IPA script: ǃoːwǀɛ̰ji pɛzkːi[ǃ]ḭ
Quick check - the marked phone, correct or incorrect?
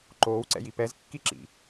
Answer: incorrect: ǁ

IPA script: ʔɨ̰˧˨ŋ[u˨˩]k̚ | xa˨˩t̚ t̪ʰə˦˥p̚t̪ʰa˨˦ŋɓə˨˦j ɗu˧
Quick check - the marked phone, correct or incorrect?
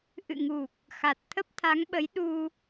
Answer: correct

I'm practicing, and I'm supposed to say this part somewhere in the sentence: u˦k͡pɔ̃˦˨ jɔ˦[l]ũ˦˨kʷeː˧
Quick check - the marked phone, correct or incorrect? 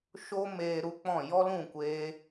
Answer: correct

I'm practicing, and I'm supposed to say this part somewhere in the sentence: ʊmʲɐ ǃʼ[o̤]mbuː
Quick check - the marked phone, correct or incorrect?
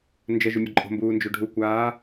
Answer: correct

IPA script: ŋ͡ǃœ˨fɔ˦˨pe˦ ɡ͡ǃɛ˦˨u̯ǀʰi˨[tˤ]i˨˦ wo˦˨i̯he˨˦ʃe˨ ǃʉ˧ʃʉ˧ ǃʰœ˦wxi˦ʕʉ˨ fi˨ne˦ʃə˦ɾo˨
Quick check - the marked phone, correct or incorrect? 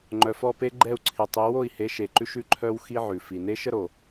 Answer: correct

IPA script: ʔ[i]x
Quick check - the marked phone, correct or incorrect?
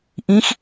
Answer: incorrect: ĩ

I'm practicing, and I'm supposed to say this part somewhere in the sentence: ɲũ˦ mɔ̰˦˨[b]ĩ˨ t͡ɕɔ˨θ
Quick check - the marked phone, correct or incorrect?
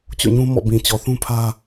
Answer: correct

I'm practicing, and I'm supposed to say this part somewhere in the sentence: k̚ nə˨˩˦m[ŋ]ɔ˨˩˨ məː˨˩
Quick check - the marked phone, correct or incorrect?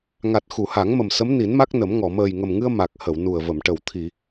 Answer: correct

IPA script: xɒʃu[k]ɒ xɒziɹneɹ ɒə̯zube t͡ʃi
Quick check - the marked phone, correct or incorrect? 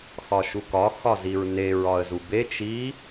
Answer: correct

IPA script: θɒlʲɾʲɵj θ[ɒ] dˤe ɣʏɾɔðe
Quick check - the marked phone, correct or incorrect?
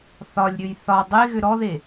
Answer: correct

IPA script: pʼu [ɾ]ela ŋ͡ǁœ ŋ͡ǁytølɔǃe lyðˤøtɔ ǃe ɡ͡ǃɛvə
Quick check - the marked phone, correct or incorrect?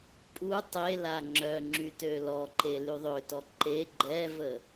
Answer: incorrect: tˤ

